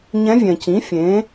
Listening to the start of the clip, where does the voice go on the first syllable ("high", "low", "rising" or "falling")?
rising